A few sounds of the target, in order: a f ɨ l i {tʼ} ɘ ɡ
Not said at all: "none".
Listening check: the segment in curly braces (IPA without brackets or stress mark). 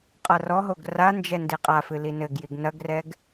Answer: n